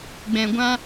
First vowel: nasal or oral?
nasal